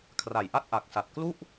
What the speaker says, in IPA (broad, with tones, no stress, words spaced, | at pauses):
kʰra˩˦jʔa˦˥t̚ʔa˨˩k̚sa˨˩t̚ klu˥˩ʔ